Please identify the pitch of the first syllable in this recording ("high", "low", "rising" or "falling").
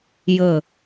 low